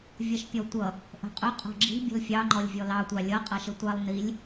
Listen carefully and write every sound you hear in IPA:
vʲ ʌ ʃ pʲ ɔ tʷ ʌ | ʔ ə̤ qʼ ʊ qʼ ɔ̤ ɡ͡ǁ i̤ bʲ ə̤ l fʲ ɑ ŋ͡ǃ ɔ lʲ vʲ ɔ l ɑ tʷ ɑ lʲ ʌ qʼ ʌ ʃ ə tʷ ɑ lˠ n i lʲ

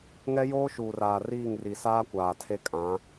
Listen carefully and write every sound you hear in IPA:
ŋ ɛ˦ j oː˦ ʃ uː˨ r aː˨ r iː˦˨ ŋ r i˨ s aː˦ kʷ aː˨ tʰ e˦ kʼ ã˨˦

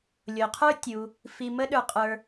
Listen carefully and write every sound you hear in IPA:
lʲ o˩ qʰ ə˞˥ tʲ u˩ | f i˨ m ə˦ ɗ ə˞˨ qʼ ə˞˨

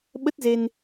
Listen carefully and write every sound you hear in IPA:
ɓ ə˦˥ t̚ z e˧ n

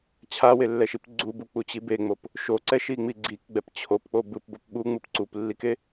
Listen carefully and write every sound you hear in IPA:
t͡ɕʰ a w e lː ɛ ʃ i p ɡ͡ǀ u b u k͡p u t͡ɕ i b e ŋ͡m o p | ʃ o ǀ ɛ ʃ i ŋ͡m i ɡ͡ǀ i k ɡ͡b ɛ p t͡ɕʰ o p k͡p o b ɯ p b o p ɓ u ŋ͡m ɯ p ǀ u p lː i k e

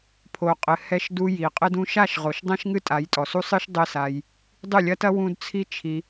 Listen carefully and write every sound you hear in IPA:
pʰ o˨ qʼ ɘ˨ h ɛ˧ ʃ d u˧ j i˨ qʼ ɘ˦ d ũ˧ ʃ a˦˨ ʃ ʁ o˨ ʃ dˤ ɛ̃˦ ʃ ŋ ɨ˦ tʼ a˨˦ j tʼ ɔ˨ s u˦ sˤ ɨ˦ ʃ dˤ ɘ˦ s a˧ j | dˤ ɨ˦˨ lʲ ɐ˦ t ɐ˦ w ũ˦ d t͡sʰ i˦ t͡ʃʰ i˧

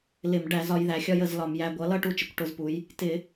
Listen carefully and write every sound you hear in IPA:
l ɪ˧˩˧ m ɖ æ˧˩˧ z ɒ˩˧ j ð æ˩˧ xʲ ɒ˧ j ə˧˩˧ z l ɒ˧˩˧ m j æ˧ ɡʷ ʌ˩˥ l ʌ˥˨ ʈ u˧ t͡ʃ ɪ˩˧ kʷ ʈ ʊ˧˩˧ z p u˩˧ j | t ɪ˧˩˧

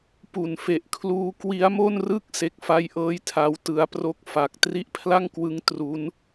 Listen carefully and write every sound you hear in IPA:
p u˨˩ n f e˨˩ ʔ kʰ l uː˦˥ k w i˦˥ a̯ m o˥˩ n r ɯ˥˩ k̚ s e˦˥ k̚ f a˥˩ j ʔ ɤː˥˩ j tʰ a˦˥ w t ɯ˦˥ a̯ p r o˥˩ k̚ f a˨˩ k̚ t r i˦˥ ʔ pʰ l a˥˩ ŋ k w ɯ˦˥ ŋ t r u˦˥ n

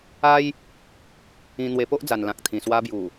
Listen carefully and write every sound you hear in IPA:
a˦ j | ĩ˧ n̪ w e˧ p o˦ ʔ d͡z a˨˩ n l ã˨ k̚ t̪ʰ ĩ˨˩ s w a˧ b j u˨˩

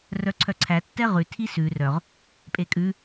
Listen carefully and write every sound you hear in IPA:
r œ ǀʰ œ ǀʰ æ tː ɛ ʁ ʉ tʰ i s ʉ r œ ʁ | pʼ e kʼ ʉ

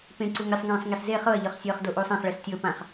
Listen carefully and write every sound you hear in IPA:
p ẽ ǀ u ŋ ɾʲ ɛ sˤ ŋ ẽː sˤ ŋ e s z e χ ɤ ɐ̯ ʎ ɤ χ sʲ ɤː χ d o ʔ uː sˤ ã χ ɭ ɛ s tʲ ɤ p ã χ

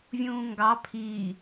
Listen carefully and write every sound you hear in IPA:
vʲ ũː ŋ ɡ ɑ pʰ iː

